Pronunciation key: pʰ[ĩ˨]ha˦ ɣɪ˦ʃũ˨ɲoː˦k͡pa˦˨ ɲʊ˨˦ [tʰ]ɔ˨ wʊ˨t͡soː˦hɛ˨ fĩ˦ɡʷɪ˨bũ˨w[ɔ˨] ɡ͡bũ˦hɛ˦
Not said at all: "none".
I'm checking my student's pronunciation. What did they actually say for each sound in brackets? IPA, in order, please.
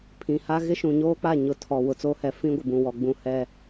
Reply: ĩ˨, tʰ, ɔ˨

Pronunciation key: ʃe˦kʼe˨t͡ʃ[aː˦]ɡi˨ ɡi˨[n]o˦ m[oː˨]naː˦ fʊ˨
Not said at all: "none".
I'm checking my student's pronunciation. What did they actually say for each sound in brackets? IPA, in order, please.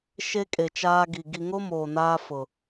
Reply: aː˦, ŋ, oː˨

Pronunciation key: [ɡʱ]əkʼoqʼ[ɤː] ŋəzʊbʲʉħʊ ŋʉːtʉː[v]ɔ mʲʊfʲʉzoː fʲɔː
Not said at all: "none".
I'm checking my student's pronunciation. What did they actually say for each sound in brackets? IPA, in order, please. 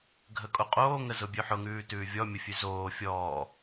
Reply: ɡʱ, oː, vʲ

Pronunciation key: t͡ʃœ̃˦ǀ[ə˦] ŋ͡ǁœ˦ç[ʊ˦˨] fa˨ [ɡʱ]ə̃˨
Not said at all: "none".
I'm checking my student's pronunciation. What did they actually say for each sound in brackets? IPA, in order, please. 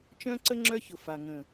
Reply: ə˦, ʊ˨, ŋ

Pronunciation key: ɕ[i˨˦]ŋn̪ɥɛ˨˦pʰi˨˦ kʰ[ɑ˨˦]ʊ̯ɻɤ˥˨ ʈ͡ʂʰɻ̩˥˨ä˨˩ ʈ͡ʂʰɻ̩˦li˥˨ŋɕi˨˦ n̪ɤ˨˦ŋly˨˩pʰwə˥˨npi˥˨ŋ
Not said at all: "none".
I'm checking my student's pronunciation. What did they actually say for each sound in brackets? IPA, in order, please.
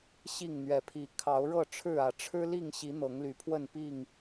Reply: i˥˨, ɑ˨˦

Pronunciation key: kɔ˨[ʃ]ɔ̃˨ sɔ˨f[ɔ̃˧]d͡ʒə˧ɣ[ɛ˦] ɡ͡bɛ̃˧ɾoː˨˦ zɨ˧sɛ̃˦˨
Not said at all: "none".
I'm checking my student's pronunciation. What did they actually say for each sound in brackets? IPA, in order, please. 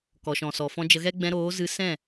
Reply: ʃ, ɔ̃˧, ɛ˦

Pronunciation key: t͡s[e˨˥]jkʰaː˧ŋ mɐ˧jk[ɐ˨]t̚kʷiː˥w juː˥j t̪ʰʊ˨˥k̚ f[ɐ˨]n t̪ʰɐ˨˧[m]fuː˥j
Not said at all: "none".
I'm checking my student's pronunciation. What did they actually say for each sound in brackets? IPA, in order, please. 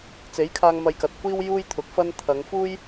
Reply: e˨˥, ɐ˨, ɐ˥, ŋ

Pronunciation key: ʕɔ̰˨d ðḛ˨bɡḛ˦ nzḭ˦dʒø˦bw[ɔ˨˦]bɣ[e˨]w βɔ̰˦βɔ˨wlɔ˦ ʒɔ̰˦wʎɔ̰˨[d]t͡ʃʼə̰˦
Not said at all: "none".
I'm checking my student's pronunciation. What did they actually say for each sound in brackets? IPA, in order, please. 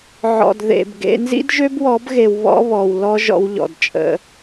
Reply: ɔ˨˦, e˨, d

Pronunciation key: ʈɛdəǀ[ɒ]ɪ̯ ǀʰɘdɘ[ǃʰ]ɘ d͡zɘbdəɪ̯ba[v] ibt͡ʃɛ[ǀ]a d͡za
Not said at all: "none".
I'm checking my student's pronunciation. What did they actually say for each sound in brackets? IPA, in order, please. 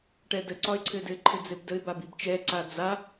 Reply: ɒ, ǃʰ, b, ǀ

